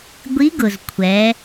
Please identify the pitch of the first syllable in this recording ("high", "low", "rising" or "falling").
rising